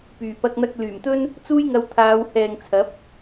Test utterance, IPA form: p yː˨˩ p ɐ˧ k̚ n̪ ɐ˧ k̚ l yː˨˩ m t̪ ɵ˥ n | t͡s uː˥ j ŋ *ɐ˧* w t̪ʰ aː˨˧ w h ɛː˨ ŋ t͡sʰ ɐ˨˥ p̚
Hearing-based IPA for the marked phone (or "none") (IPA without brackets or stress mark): ɐ˧